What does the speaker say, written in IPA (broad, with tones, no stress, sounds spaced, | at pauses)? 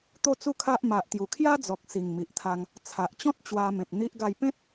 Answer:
t̪ o˦ t͡s u˥˧ kʰ a˦ ʔ m a˨ ʔ t̪ j u˨˩ kʰ j a˦ d͡z ɔ˨ k̚ s i˨˩ ŋ m i˨ ʔ t̪ʰ a˧ ŋ | t͡sʰ a˨ ʔ t͡ɕ ɔ̃˦ t̚ t͡ɕ w a˧ m ẽ˨ p̚ n̪ i˦ ʔ ɡ a˥˧ j p ẽ˦ t̚